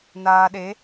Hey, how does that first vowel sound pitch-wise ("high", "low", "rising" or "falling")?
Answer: low